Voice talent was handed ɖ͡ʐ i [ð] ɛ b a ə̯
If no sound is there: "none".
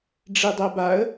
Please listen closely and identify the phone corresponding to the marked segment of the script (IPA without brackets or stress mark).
dˤ